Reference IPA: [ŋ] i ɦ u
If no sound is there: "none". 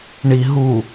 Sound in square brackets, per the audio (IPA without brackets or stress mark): ɳ